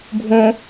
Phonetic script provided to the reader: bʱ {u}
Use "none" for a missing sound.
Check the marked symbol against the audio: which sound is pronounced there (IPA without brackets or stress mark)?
ũ